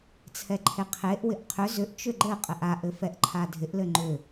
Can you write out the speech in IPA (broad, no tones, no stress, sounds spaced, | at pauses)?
t͡sʰ ɛ ǃʰ e qʰ e ʔ w ɪ ʔ qʰ ʏ z ʏ ʔ t͡ʃ ʏ ɡ͡ǃ ɘ qʼ ɘ ʔ a ʔ ɘ f ɛ ʔ ǃʰ a dʱ ɪ ʔ l ɘ ŋ͡ǃ ʏ